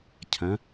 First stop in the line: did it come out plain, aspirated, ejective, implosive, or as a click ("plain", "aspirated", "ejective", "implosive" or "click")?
aspirated